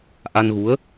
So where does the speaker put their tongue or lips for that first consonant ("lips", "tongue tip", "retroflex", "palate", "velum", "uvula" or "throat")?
throat